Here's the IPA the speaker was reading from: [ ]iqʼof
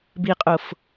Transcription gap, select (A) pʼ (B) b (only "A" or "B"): B